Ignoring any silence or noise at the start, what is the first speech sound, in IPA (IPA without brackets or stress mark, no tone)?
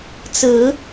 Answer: t͡s